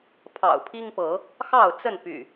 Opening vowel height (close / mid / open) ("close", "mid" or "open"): open